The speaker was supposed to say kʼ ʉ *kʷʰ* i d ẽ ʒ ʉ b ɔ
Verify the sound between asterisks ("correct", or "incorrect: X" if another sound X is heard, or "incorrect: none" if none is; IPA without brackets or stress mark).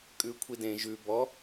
correct